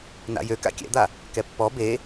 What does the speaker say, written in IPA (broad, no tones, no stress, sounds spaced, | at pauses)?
n a̰ j ø k a̰ kʲ ɛ̰ d̪ a | k ɛ pː ɔ b e